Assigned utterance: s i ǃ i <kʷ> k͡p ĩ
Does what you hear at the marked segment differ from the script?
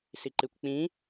no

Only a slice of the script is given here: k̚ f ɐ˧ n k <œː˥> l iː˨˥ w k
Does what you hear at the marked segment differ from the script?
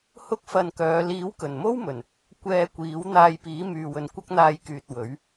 yes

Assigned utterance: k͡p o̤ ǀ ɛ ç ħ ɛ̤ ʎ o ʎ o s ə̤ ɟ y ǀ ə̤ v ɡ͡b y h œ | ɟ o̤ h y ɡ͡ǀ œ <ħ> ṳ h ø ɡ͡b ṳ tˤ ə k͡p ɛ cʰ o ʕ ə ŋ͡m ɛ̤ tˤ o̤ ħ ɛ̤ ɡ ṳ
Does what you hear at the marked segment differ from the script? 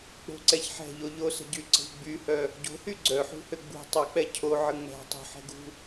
no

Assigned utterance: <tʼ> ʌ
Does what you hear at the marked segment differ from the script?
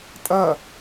no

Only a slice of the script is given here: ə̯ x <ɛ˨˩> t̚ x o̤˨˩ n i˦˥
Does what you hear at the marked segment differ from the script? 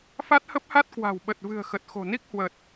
yes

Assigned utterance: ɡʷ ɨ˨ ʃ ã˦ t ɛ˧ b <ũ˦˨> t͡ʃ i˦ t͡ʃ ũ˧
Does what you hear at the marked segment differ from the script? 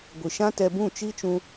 no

